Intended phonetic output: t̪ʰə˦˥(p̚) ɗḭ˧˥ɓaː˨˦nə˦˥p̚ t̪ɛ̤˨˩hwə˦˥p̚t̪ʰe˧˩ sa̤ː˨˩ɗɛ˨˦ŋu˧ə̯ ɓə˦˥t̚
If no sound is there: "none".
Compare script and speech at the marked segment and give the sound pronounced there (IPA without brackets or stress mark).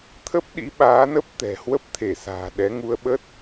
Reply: p̚